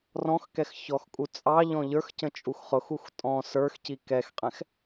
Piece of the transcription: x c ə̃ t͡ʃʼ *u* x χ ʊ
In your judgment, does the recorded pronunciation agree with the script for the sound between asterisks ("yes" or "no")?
yes